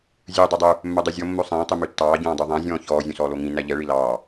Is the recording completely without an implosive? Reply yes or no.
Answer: yes